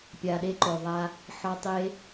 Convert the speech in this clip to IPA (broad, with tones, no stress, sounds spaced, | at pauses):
pʲ a˨ ɗ e˦ ǃ o˨ ðˤ a˦ | ħ ɔ˧ tˤ e˦